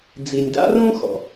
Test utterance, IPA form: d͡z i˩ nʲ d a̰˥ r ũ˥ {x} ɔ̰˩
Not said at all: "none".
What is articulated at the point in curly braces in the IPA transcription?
x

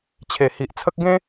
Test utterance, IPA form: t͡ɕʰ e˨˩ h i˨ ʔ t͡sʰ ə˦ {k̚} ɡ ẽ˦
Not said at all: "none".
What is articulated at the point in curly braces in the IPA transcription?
k̚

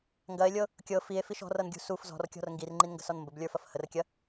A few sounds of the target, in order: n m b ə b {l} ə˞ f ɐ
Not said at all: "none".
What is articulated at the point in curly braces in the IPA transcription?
lʲ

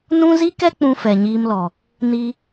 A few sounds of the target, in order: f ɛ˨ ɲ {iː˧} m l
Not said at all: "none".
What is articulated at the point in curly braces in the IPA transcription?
iː˧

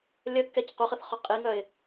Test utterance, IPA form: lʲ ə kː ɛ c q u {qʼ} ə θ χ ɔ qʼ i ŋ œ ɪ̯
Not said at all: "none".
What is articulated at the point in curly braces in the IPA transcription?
χ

